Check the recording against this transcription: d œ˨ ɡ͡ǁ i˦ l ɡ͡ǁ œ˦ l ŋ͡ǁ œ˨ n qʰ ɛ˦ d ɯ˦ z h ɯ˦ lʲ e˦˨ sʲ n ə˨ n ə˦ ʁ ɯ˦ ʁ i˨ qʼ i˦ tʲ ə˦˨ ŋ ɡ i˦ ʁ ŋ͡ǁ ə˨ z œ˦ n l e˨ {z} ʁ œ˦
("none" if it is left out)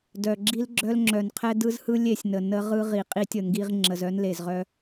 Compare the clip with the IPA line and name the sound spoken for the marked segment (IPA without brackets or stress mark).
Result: z